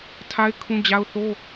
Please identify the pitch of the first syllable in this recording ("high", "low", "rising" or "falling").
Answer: high